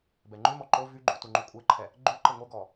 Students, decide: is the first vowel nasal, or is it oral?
oral